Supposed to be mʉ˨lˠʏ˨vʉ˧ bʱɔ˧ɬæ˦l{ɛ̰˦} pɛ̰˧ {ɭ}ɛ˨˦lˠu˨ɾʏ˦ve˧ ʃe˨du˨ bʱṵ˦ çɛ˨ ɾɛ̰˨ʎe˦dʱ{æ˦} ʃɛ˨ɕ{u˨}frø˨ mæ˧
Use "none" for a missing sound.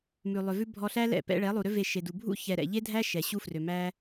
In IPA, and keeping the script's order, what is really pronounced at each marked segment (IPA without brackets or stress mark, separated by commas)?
ɛ̰˦˨, ɭ, æ˦, u˦